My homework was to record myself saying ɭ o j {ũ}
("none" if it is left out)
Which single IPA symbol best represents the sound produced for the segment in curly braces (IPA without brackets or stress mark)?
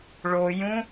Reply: ũ